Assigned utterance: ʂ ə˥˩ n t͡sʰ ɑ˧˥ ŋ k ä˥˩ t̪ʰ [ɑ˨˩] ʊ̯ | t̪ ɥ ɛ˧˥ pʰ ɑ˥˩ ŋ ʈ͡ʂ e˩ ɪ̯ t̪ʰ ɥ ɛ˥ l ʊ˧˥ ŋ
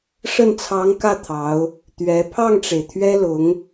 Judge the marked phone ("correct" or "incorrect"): incorrect